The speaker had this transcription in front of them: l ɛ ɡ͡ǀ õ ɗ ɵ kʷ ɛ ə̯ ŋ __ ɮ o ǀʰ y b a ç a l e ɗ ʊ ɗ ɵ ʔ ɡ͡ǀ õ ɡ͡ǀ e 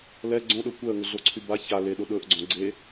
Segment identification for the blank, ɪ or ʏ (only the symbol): ʏ